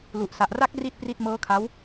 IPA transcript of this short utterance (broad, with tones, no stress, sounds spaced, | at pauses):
l u˨˩ ʔ s a˨˩ ʔ r a˦˥ k̚ r i˥˩ t̚ p r i˥˩ t̚ m ɤː˦˥ kʰ a˦˥ w